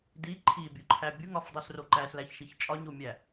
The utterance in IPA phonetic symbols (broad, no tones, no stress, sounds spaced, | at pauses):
d i ǃʰ i bʲ u ǃʰ æ bʲ u ŋ ɒ f dˤ u s r o ǃ æ s l æ ç ʃ i ç t͡ʃʼ ɒ ɲ o mʲ æ